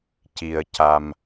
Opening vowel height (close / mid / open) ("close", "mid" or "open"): close